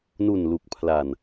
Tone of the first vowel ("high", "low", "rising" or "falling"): low